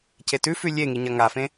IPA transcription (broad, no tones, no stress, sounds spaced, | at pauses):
c e t ʉ f ʉ lʲ e ŋ i ɲ ɐ ŋ a f ẽ